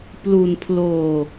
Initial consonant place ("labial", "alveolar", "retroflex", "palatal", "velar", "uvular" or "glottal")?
labial